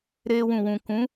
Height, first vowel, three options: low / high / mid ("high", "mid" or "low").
mid